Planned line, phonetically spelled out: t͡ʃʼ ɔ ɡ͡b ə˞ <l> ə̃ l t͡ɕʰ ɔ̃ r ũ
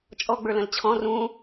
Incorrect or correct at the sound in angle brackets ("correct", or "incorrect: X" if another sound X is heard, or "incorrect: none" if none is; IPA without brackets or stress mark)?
correct